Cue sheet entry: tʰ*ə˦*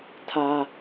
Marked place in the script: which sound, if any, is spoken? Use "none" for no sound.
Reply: a˦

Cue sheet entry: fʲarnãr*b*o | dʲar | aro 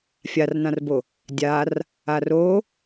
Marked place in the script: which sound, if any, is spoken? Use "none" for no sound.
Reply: b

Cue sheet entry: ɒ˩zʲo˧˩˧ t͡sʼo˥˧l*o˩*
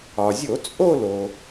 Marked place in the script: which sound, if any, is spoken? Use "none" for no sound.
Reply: o˩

